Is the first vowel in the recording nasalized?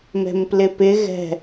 no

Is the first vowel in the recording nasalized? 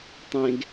yes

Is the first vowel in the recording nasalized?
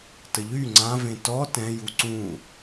no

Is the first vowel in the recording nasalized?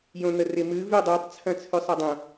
yes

